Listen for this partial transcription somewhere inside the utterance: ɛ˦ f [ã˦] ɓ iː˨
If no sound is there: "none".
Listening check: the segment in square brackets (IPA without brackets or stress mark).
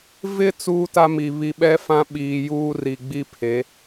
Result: ã˦